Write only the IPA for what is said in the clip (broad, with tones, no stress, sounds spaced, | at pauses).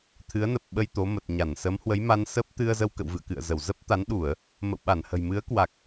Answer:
t̪ʰ ɨ˨˦ ə̯ n ə˨˩ p̚ ɓ ə˧ j t̪ o˨˦ m ə˨˩ t̚ ɲ a˧˩ n s ə˨˦ m h w ə˨˦ j m a˧ n s ə˦˥ p̚ t̪ ɨ˧ ə̯ z ə˧ w k ə̰˧˨ w v ɨ̰˧˨ ə̯ k ɨ̰˧˨ ə̯ z ə˧˩ w z ə˦˥ p̚ t̪ a˨˦ n ɗ u˧˩˨ ə̯ | m ə̰˧˨ w ɓ a˧˩ n h ə̤˨˩ j m ɨ˨˦ ə̯ k w a˨˩ k̚